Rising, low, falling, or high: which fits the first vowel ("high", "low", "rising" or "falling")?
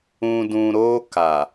low